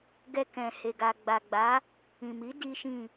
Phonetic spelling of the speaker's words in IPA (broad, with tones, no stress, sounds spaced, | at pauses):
ɡ ɛ˧ k ɛ̃˨ h e˨ ɡ a˨ ɡ͡b a˨ ɡ͡b a˨˦ | ĩ˨ m i˨˦ d i˦ ʃ ĩ˦˨